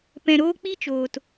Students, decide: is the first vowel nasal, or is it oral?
nasal